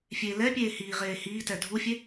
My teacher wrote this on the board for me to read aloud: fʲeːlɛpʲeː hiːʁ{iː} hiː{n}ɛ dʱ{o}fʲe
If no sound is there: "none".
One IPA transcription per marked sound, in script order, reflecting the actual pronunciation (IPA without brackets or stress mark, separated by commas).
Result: eː, t, u